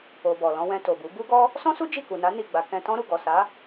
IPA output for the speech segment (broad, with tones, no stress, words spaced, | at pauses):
o˨ bɔ˨lɔ̃˧wɛ̃˧ to˨bu˨˦ bu˦ɡɔ˦ | sɔ̃˦su˦ d͡ʒi˦˨ku˨na˨˦ ni˦˨ɡ͡ba˧ kɛ̃˧tɔ̃˦ ɾu˦˨ ɡɔ˨sa˨˦